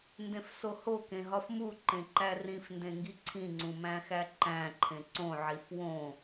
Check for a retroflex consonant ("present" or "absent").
absent